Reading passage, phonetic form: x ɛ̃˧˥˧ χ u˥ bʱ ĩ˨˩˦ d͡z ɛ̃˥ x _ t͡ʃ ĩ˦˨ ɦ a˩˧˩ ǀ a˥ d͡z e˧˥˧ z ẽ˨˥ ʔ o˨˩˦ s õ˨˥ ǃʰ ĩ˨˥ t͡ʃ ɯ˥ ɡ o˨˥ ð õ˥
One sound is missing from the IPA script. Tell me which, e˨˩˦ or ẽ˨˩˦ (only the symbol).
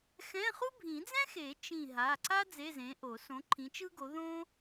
e˨˩˦